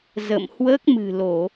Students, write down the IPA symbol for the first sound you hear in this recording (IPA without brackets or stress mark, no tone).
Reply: z